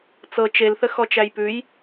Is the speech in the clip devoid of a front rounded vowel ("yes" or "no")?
yes